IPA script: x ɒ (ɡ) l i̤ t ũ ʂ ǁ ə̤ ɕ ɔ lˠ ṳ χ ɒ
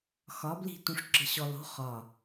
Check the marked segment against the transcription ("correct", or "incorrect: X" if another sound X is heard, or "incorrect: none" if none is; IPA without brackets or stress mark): incorrect: b